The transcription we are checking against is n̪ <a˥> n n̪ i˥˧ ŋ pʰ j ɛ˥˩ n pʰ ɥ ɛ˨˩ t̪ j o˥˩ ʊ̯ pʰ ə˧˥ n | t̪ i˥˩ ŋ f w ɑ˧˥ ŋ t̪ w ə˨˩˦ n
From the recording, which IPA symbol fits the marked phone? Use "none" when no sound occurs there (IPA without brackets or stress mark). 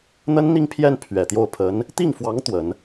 ə˥